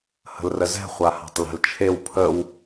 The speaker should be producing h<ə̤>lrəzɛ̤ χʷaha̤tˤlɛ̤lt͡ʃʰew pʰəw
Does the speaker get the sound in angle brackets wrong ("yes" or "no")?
no